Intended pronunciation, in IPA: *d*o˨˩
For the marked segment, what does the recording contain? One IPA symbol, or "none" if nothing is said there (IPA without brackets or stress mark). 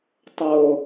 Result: tˤ